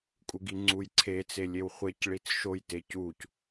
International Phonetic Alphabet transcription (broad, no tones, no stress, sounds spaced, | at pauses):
kʼ u ɡ i ŋ͡ǀ u j ǀʰ e t͡s e lʲ e w χʷ e c ɭ i t͡s ʃ o j t e c u c